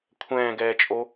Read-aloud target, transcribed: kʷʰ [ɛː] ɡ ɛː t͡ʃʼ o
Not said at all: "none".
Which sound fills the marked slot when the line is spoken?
ɛ̃ː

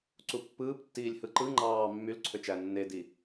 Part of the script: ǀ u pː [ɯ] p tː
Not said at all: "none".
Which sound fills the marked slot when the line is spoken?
ɯː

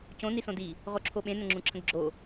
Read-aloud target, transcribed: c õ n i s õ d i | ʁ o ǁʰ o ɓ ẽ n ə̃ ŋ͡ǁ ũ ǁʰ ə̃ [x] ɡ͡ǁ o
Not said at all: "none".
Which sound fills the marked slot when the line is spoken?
ɡ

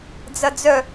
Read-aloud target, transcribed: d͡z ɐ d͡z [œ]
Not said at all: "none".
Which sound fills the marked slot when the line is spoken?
œ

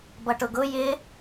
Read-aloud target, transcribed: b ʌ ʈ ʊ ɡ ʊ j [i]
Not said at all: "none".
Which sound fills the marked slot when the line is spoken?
ɪ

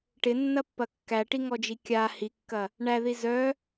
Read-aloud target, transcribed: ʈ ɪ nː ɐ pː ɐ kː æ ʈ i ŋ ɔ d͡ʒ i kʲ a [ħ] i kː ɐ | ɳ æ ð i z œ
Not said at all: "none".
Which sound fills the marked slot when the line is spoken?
h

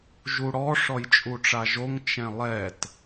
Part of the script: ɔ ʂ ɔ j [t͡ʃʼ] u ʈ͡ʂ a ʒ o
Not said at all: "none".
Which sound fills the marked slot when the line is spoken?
t͡ʃʼ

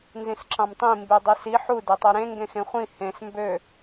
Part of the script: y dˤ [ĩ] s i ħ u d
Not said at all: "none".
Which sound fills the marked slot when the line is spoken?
i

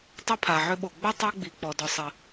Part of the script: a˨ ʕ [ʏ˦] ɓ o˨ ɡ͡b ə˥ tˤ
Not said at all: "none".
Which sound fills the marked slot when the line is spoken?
ʏ˦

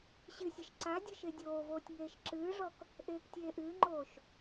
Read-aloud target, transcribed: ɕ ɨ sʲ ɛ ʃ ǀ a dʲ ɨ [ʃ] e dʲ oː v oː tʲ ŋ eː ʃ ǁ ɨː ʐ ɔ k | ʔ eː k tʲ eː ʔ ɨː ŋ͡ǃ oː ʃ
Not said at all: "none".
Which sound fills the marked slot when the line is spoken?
ʃ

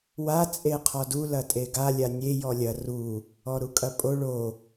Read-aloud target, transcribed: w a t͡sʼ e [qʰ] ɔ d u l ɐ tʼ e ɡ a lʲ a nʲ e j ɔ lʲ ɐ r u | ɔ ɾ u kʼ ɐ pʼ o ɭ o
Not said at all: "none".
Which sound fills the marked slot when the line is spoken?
qʰ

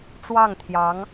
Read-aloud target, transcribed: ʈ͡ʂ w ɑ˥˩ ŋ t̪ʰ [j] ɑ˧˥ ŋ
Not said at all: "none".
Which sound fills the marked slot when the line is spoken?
j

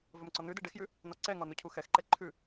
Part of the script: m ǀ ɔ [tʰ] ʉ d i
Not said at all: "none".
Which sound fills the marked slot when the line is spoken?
n̪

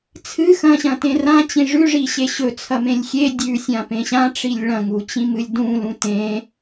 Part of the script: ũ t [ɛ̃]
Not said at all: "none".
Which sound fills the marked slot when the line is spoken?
ẽ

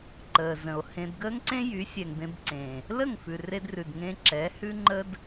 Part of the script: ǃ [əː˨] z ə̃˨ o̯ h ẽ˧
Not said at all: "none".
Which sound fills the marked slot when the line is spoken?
əː˨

